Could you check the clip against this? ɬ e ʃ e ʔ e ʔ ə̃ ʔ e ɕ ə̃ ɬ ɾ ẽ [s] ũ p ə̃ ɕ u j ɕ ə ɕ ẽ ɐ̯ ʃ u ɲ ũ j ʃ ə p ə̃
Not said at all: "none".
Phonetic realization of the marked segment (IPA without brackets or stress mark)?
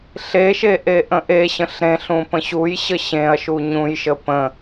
ɬ